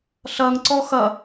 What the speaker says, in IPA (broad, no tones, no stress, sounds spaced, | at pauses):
ɬ ɐ ŋ ǀ ɔ x ɐ